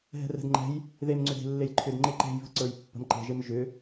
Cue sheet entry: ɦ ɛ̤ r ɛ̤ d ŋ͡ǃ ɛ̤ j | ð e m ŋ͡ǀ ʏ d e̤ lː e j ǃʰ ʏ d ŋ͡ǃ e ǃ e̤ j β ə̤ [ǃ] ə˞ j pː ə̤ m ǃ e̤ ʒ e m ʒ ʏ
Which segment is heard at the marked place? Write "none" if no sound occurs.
ǀ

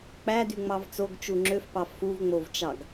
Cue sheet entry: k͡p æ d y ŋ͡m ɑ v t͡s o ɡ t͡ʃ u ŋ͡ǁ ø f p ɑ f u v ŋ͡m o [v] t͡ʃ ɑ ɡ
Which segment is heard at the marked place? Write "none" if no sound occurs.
v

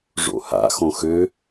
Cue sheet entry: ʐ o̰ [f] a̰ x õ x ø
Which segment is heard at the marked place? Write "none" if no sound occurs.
h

